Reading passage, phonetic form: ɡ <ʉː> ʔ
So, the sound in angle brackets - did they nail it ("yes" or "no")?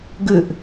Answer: no